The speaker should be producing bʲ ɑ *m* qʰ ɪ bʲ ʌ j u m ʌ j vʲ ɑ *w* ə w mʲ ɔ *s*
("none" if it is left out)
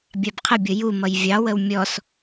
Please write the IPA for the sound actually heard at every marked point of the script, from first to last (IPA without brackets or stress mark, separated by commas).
b, w, s